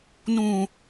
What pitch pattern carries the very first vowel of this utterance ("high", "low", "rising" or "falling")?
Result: low